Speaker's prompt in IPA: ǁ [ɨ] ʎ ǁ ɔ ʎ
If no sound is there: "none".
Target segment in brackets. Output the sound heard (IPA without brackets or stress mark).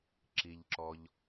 i